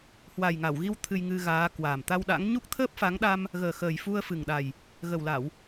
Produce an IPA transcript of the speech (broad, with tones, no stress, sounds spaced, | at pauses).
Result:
h w a˨˩ j ŋ a˧˩ w ɣ i˧ w t̪ʰ ɨ˧ j ŋ ɨ˧ ɣ aː˨˦ k w aː˨˩ m t̪ a˧ w ɗ a̰˧˥ ŋ ɲ u˦˥ k̚ t̪ʰ əː˦˥ p̚ f a˨˦ ŋ ɗ a˧ m | ɣ əː˨˩ x əː˨˩ j f u˧ ə̯ f ɨ˨˩ ŋ ɗ a˨˩ j | ɣ ə˨˩ w l a˧˩˨ w